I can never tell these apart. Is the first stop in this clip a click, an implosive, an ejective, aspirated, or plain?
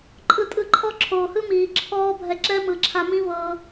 click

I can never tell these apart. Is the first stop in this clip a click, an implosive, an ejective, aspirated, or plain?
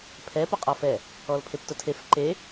aspirated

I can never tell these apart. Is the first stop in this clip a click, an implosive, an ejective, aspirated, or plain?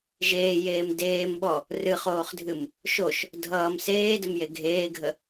plain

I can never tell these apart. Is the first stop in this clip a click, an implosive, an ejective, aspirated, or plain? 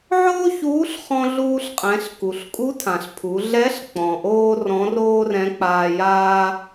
ejective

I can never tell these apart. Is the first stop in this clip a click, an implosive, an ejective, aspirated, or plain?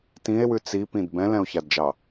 plain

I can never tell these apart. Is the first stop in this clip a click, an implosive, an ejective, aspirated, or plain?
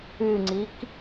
click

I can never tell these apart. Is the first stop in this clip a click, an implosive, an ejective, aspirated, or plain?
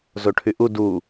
aspirated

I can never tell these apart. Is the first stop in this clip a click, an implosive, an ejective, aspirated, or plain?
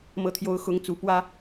aspirated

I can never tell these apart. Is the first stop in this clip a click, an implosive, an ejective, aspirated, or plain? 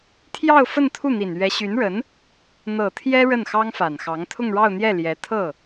aspirated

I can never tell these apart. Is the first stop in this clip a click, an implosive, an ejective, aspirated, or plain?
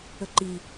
click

